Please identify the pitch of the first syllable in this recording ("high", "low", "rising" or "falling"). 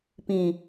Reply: low